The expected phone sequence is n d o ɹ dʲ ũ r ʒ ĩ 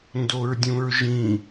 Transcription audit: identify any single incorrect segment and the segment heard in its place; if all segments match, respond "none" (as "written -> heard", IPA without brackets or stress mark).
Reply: r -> ɹ